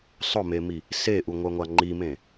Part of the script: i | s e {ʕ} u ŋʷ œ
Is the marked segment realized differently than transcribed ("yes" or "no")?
yes